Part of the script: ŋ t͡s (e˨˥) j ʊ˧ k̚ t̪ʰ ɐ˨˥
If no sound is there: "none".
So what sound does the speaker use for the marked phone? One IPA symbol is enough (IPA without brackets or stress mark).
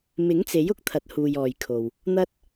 e˨˥